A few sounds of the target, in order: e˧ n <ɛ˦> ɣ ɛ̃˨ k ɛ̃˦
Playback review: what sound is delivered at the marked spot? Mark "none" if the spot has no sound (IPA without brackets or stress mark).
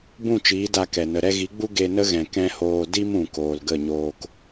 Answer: ə˦